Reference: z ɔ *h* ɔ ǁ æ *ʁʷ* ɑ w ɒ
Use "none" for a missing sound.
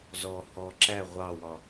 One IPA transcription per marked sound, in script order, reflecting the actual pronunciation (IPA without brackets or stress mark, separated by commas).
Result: h, ʁʷ